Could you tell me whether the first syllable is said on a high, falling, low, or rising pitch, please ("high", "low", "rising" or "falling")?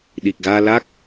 low